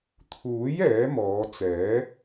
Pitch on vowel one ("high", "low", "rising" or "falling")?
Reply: rising